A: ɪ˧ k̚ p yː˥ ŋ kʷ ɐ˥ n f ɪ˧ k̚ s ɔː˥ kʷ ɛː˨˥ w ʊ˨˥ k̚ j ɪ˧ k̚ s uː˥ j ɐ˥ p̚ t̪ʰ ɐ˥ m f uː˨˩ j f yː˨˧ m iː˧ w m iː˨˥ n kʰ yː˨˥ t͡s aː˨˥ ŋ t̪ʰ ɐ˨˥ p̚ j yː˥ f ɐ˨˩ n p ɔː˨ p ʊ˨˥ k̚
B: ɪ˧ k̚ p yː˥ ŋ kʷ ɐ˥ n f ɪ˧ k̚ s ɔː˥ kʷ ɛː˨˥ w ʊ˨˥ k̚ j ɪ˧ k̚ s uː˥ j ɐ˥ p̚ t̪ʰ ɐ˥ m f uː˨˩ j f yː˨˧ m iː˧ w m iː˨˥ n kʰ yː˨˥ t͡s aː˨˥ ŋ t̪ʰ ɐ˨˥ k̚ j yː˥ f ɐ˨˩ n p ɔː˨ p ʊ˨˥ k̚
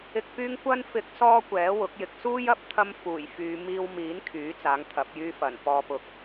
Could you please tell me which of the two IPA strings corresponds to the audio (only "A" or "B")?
A